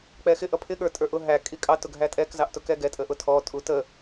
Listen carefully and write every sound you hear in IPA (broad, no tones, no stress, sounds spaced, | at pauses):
k͡p ɛ x ɪ ʔ ʌ pʰ ɪ ɠ ə˞ tʼ ə˞ ʔ ʊ ɦ æ kʼ i kʼ ɑ t ʊ ɡʱ æ tʼ ɛ k z ɑ ʔ t ʊ k ɛ ɡ ɛ tʼ ə ʔ ʊ tʰ ɔ tʼ u t ə